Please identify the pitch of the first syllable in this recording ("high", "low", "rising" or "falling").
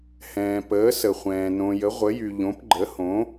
low